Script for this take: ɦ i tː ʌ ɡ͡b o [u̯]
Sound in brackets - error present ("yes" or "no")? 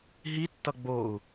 no